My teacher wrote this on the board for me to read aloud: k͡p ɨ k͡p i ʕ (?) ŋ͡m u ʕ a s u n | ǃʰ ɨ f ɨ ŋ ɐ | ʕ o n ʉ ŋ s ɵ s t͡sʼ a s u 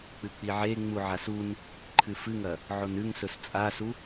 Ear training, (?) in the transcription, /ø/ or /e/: e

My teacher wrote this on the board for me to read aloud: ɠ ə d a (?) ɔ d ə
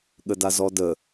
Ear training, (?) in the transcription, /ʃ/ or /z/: z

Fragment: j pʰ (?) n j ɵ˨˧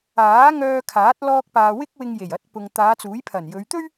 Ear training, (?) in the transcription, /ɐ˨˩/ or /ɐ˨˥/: ɐ˨˩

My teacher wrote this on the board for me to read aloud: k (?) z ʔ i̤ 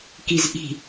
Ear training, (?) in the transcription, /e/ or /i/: i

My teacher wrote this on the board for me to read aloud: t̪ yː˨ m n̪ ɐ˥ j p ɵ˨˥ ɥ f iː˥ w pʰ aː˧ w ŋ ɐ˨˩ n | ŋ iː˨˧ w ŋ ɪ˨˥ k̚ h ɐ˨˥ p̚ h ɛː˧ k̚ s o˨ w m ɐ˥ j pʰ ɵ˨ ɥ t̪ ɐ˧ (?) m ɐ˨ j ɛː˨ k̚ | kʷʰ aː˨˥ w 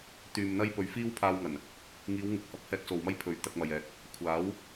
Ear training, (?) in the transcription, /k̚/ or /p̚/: k̚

